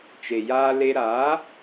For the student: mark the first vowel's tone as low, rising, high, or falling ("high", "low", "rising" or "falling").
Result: low